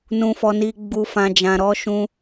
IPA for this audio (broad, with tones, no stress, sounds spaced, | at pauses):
n ũ˨ f ɔ˨ n i˨ ɡ͡b u˨ f ã˨ d͡ʒ ã˨ ɾ ɔ˧ ʃ ũ˧